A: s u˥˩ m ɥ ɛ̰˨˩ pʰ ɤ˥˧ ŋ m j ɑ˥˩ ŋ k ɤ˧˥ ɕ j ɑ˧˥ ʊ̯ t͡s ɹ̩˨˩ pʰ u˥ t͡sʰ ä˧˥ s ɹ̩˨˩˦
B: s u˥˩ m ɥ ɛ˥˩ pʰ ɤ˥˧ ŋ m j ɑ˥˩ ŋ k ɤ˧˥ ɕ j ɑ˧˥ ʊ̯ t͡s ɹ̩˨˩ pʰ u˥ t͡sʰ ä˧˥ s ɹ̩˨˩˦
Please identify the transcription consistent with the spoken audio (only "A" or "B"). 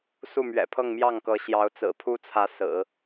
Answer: A